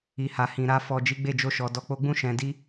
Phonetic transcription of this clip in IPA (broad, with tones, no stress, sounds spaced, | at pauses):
i˨ h a˨ h ĩ˨ ɾ a˧ f ɔ˨ d͡ʒ i˨˦ ɡ͡b e˦˨ d͡ʒ o˧ ʃ ɔ˨ d ɔ˨ k͡p o˧ ɡ͡b ũ˦ ʃ ɛ̃˧ d i˦